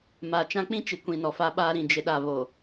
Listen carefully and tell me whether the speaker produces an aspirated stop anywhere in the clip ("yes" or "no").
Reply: no